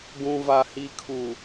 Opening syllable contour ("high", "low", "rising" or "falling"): low